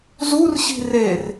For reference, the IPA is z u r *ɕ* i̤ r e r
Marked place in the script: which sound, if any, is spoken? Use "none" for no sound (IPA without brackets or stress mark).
ɕ